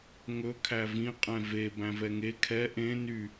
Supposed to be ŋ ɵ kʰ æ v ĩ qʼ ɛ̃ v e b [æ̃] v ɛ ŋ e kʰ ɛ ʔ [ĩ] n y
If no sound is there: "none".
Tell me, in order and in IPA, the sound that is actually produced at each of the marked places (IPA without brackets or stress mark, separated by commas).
æ̃, ẽ